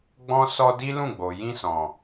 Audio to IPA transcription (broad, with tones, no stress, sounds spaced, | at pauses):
ɡ͡b ɔ̃˧ s ɔ˧ d i˦ l ũ˦˨ ɡ͡b o˨ j ĩ˧ s ɔ̃˨